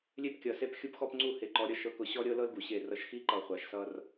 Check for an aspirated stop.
absent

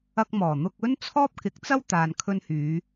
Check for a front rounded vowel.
present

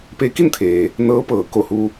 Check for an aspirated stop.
present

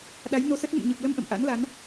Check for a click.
absent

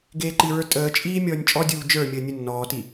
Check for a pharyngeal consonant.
absent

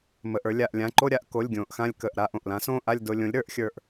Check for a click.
present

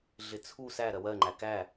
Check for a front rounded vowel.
absent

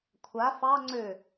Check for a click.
present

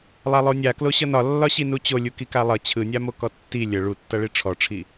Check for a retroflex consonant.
present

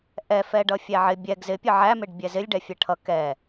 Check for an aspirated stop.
present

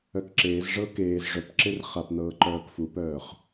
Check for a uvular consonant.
present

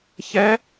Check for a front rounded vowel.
absent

